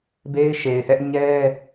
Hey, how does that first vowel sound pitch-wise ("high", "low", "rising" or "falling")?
high